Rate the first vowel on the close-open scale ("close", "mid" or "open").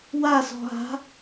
open